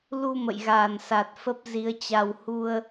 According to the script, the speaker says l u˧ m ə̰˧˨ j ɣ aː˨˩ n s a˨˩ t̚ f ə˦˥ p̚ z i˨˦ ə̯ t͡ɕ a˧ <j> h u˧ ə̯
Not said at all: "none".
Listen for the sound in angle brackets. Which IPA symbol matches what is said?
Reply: w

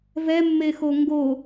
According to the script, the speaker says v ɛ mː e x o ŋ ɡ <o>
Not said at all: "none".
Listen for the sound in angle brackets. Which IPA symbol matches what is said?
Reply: o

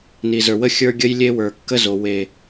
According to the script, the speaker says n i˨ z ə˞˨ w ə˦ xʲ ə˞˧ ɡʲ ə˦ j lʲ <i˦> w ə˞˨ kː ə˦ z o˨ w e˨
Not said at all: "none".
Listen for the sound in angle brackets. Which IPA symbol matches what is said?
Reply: e˦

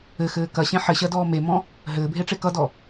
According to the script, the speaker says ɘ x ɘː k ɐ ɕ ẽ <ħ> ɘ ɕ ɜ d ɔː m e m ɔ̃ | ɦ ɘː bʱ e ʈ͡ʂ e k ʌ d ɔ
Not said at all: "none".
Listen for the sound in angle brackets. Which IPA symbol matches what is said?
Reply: ħ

